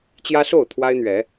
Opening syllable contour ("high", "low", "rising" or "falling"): high